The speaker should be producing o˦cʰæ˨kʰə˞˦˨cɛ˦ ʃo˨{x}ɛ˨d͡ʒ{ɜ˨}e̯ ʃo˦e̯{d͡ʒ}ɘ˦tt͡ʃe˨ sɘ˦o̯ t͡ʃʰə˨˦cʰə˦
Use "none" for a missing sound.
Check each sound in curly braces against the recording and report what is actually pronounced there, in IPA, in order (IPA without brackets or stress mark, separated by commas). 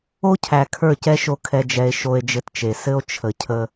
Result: kʰ, ɛ˨, d͡ʒ